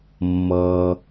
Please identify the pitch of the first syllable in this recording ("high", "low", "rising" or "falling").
low